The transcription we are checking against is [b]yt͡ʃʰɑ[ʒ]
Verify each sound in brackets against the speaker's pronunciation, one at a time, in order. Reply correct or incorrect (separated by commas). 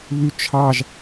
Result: incorrect, correct